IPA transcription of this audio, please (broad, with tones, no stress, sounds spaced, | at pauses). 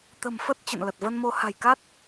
t̪ ə̤˨˩ m f ə˦˥ t̚ t͡ɕ ə̰˧˨ n l ə˨˩ t̚ v ə˧ n m o˧ h a̤˨˩ j k a˦˥ t̚